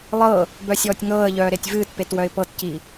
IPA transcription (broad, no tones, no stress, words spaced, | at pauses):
lˠɤ | bœsʲɔːtʲŋɤːə̯ʎœː ɾetʲvɨːtpet wœɪ̯pɤtci